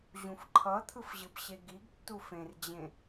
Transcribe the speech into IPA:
ʑũfǃʰʌt̪ʰɯf ʑɯbɕeɡiɡtːu fẽrd͡ʑẽ

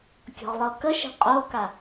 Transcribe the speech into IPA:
kʲɔ̤ʁlˠɤkəʃi̤ qʼoka

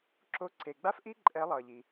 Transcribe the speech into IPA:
ǁo˧˥ ǀe˩ ɡ͡ba˥f ʔi˥ ǃʼɛ˨˩˦lˠʌː˩ʎi˩

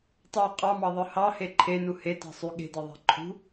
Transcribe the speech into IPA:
tˤɑ qʼɑmɑðˤɯ hɑhe ǃʰenu hetɑ̤ sˤy ɠe̤deðˤæ̤ ǃʰṳ

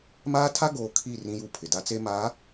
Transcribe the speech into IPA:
maː˦tʰa˦ɡoː˨ kʰi˦˨ rĩ˦ju˦˨pʰɪ˨ da˦t͡se˦maː˨˦

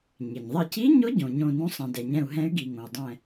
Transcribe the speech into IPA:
ɲɪ˩ɲðˤɪ˧˩ci˧˥ɲʊ˧˥ ɟõ˩ɲõ˧˩nũ˧˥ sˤɛ̃˩dɛ˩ɲɛ̃˧˩u̯ ɦɛ̃˧˥y̯ɡi˩ŋõ˩u̯dˤɛ̃˧˩

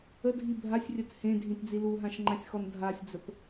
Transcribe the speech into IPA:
ədʱi bʱasʲrʲət hẽdʱĩtd͡zi luɦãʃŋ͡ǃãsʲxɔn dʱasʲd͡zəp

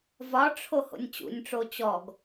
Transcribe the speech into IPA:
vɒʈ͡ʂʰo ho̰nʲt͡ɕṵnʲʈ͡ʂo t͡ɕɔɡ

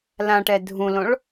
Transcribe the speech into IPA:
lãʈɛ dʱũlõɭ

